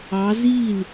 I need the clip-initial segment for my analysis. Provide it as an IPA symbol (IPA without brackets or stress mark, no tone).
ɑ